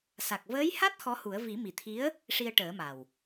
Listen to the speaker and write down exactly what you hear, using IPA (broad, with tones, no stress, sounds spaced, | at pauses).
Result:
s a˨˩ k̚ v əː˧˥ j h a˦˥ t̚ x ɔ˧˥ h u˨˩˦ ə̯ v i˨˩˦ m i˨˩ t̪ʰ i˧˥ ə̯ | ʂ i˧ ə̯ ʈ əː˨˩˦ m a˨˩ w